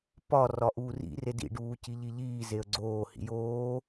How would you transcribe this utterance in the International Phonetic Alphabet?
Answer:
p ɒ r ɒ ʔ uː r ḭ r e d ḭ ɖ uː c i ʎ i ʎ iː z e ə̯ ɡ͡ǀ oː h ḭ j oː

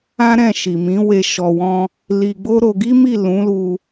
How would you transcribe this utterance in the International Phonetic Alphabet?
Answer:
ã˦ ɾ ɛ̃˦˨ ʃ i˨ m ĩ˨˦ w e˧ ʃ ɔ˨ w ɔ̃˧ | l i˧ ɡ͡b o˦ ɾ o˧ ɡ i˦ m i˦˨ l ũ˨˦ l u˧

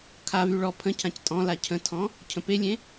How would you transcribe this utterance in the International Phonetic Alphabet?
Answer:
kʰ a v y ɭ ɔ pʰ ə̃ cʰ ã c tʼ ɔ̃ l a cʰ ə̃ tʰ ɔ̃ | cʰ ə̃ p e lʲ ẽ

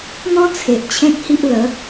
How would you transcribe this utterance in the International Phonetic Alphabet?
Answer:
n̪ ɔ̃˦ t͡sʰ e˨ ʔ t͡ɕʰ ẽ˦ t̚ h i˦ ʔ l ə˨˦

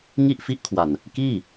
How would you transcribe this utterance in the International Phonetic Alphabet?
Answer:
ŋ i˥˩ ʔ f i˦˥ ʔ kʰ w a˨˩ n | k iː˥˩

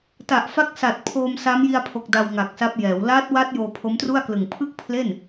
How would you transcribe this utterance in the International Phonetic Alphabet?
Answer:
t a˨˩ ʔ f a˦˥ k̚ s a˨˩ t̚ pʰ oː˧ m s a˦˥ m j i˧ a̯ pʰ o˨˩ k̚ d a˧ w ŋ a˨˩ k̚ s a˦˥ p̚ j ɛː˩˦ w l aː˦˥ t̚ w a˦˥ t̚ j oː˧ pʰ o˦˥ m t r u˥˩ a̯ k l ɯ˨˩ ŋ pʰ ɯ˥˩ k̚ pʰ l e˥˩ n

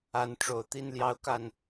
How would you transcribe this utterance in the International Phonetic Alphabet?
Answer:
a˨˦ n ʈ͡ʂ o˨˩ ʊ̯ t̪ i˦ n l j ɑ˦ ʊ̯ k a˥˨ n

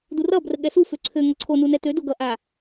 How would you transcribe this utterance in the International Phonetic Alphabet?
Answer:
d u r ʌ b r ə ɠ ɛ s u f ø ǀʰ ø ŋ ʌ ǀʰ o n u n ɛ t̪ ø d o ɡ ʌ ʔ a

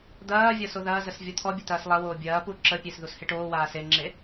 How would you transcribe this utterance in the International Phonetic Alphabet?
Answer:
d̪ ɐː vʲ ɐ s o ð ɐː z ə s vʲ ɔ t̪ʰ ɔ bʲ ə t̪ ɐː s lˠ ɐ w oː bʲ ɐː p u ǁ ə pʲ e s ð u s h e ʈ oː w aː s e ŋ͡ǁ e

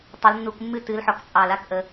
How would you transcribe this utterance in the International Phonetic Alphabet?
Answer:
tˤ o˨˦ l nː u˧˩˧ k mː ɨ˥˩ t ɨ˨˦ l ħ ɔ˨˦ k t͡sʼ ɑ˧˩˧ l a˩˧˩ k ʔ ə˧˩˧

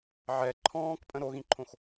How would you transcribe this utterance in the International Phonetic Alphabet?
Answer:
ʕ ɛ ǃʰ ɔ̃ː k pʼ ə̃ ɾ o ɣ ĩ ǃʰ õ x

